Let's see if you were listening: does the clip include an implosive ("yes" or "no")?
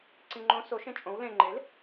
no